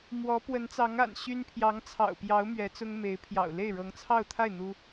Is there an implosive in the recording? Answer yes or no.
no